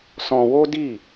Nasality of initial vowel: nasal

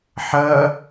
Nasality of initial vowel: oral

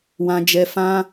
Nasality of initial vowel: nasal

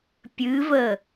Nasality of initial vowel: oral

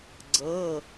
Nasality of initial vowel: oral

